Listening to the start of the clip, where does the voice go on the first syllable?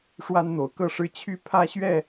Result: high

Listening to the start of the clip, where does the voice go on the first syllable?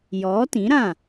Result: rising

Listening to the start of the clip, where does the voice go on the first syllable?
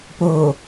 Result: low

